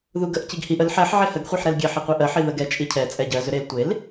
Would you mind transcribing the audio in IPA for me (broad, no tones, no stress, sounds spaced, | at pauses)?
ð u ɡ ə ʔ c i ɡ h i ʔ ə l ħ ɛ ħ ʕ e h ə ɡ χʷ i ħ ɾ ɛ l ɡʲ ɛ ħ i qʷ ɜ ʔ ɜ ħ i ð ə ɡ ɛ t͡ʃʼ i cʰ ɛ t͡sʼ ɛ ɟ ɜ z ʏ ɾ e l tʷ e l